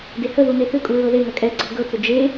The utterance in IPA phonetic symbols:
d e h ə ð u n e θ ʏ kʼ u ɹ ɤ ð e ŋ ɐ kʼ ɛ ɡ͡ǀ ɤ ɡ ɤ t͡s ʏ d͡ʒ e

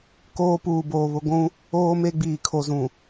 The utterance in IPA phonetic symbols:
k oː˦ p uː˨ b oː˨ β ʊ˦ ɡʷ ũ˦ | oː˦ m e˦ ɡ͡b iː˨ kʰ o˨ z ũ˨

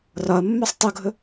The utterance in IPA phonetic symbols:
r ɒ ɐ̯ mː œ sˤ tˤ u ɡʱ ɵ

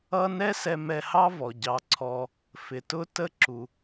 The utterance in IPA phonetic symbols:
ʌ˥ n ɛ˥ s ɛ˧ m ɛ˧ h ɑ˥ v ɔ˩ ɟ ɑ˧ ǀʰ ɔ˧ | f ɪ˩ t ʊ˥ t ə˥ ǁ u˩

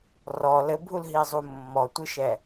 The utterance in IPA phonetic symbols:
r ɔ l ɘ bʱ u l ɦ i zˤ u mː ɔ tʷ ɨ ʃ ɛ

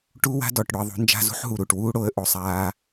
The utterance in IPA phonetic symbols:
ʈ u˦ w a̤˦ d ɔ˨ ʈ ɽ ʊ˧ ə̯ ðˤ ṳ˦ n d͡ʒ a̤˦ z ṳ˦ ħ ɦ u˨ ɾ u˨ ʈ w uː˦ ɽ o˧ ə̯ ʔ o˨ sˤ aː˧

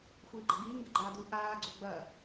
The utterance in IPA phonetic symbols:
xʷ iː ɡ͡ǃ ɐ ɡ iː ŋ ɡ ɘ ɡ͡ǃ aː d u ʔ aː ɡ͡ǀ o ɡ͡b ɐ

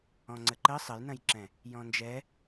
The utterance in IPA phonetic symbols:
ɔ̃ ŋ͡ǀ ə ǃ ə sˤ ə j n ɐ̃ j ǁ ɛ̃ | j ɔ̃ n d͡ʒ ɛ

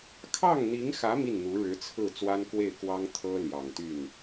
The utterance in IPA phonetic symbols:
kʰ ɑ˥˩ ŋ n̪ i˧˥ ŋ x ä˧˥ m i˥˩ n n̪ u˧˥ ɻ ɻ̩˧˥ t͡sʰ ɹ̩˥˩ t͡s w a˥ n k w e˥˩ ɪ̯ k w ɑ˥ ŋ t̪ʰ ɤ˥ l j ɑ˨˩ ŋ t̪ y˥˩ n

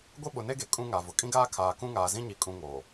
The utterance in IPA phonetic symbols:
ɡʷ e˦ ɓ ʊ˨ n e˦ ɡ e˨ kʼ ũ˦ ŋ a˨ v ʊ˨ kʼ ĩ˦ ɡ aː˦ kʰ aː˨ k ũ˦ ŋ aː˨ z ĩ˦ ɲ i˨ kʼ ũ˦ ŋ o˨

